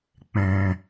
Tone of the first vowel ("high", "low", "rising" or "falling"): low